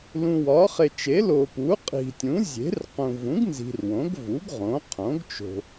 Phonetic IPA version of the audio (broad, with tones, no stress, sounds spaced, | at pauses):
l ũ˨ w ɒ˩˥ χ e˨ t͡ʃ e˩˥ l o˨ p u˩˥ qʼ i̤˨ tʲ ũ˩˥ zʲ e̤˩˥ r q ũ˨ v ũ˩˥ ɡ n z i̤˨ r w õ˩˥ ɡ v u˩˥ ɡ ʁ õ˩˥ qʰ õ˩˥ ɡ t͡ʃ o̤˨